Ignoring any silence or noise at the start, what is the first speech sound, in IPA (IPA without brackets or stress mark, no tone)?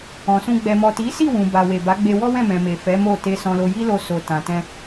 ɔ̃